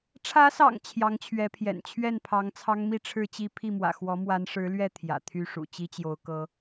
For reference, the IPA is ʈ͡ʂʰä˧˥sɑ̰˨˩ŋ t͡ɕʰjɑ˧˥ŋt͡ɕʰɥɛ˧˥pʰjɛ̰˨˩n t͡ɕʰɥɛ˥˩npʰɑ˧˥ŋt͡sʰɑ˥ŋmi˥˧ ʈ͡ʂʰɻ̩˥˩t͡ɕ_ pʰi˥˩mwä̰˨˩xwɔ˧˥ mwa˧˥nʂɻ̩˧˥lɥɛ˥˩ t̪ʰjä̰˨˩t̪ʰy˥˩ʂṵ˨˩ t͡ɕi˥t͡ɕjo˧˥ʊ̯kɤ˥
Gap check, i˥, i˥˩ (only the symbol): i˥